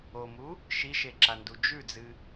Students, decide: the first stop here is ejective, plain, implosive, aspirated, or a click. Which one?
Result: click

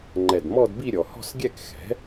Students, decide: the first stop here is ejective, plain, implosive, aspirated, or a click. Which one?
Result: click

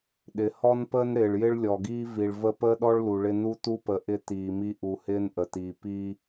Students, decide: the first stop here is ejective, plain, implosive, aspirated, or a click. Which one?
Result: implosive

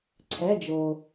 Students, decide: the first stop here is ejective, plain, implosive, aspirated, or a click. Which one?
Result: click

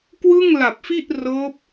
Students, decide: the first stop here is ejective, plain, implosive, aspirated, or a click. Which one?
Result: plain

